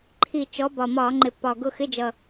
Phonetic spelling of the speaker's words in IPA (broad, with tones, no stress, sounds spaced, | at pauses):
ǃʰ i˨˩ t͡ʃ ɔ˨˦ b ɒ˨˩ m ɒː˧˩˧ ŋ͡ǃ ɪ˨˩ pː ɒ˨˩ ɡ ʊ˦˨ x ɪ˧˥˧ d͡ʒ ʌ˨˩